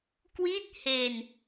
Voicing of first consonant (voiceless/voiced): voiceless